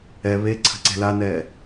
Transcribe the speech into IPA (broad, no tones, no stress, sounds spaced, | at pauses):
ɛ β e ǀʰ ə̤ ǀ e̤ l a n ɛː